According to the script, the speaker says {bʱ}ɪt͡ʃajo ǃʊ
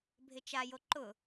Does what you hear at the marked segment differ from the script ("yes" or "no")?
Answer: no